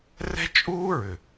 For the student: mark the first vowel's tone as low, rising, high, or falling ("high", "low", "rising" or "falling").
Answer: high